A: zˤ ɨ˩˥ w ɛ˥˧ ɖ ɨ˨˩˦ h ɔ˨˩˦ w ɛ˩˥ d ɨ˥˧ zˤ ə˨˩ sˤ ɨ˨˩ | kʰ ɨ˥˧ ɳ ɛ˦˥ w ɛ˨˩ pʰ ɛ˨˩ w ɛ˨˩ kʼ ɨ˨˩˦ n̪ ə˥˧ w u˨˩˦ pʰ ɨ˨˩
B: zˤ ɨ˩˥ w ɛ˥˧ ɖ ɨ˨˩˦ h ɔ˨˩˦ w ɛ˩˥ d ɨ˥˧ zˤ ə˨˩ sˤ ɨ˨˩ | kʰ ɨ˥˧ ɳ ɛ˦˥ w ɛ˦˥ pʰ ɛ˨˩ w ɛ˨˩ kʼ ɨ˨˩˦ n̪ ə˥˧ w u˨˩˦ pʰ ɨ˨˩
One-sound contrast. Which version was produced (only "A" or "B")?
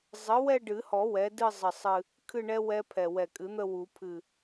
B